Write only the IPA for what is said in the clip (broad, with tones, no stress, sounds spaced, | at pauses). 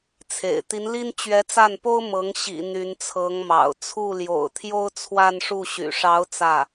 t͡sʰ ḛ˨˩ ɪ̯ t̪ i˧˥ n l i˥ n t͡ɕ ɥ ɛ˧˥ t͡s a˥˩ n p o˥ ʊ̯ m ɤ˧˥ ŋ ɕ ḭ˨˩ n̪ y˧˥ n t͡sʰ ɤ˧˥ ŋ m ɑ̰˨˩ ʊ̯ t͡sʰ u˥˩ l j o̰˨˩ ʊ̯ t̪ʰ j o˥ ʊ̯ t͡sʰ w a˥˧ n ʂ u˥˩ ɕ y̰˨˩ ʂ ɑ˧˥ ʊ̯ t͡s ä˥˩